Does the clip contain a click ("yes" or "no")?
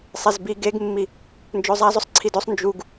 yes